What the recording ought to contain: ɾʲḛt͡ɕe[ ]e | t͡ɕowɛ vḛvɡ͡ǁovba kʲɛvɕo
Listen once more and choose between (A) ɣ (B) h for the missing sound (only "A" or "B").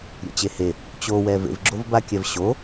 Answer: B